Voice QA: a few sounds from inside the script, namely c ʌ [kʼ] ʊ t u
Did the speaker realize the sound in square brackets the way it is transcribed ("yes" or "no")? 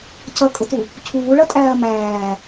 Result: yes